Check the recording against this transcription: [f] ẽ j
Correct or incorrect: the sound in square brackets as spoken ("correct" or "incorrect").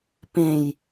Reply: incorrect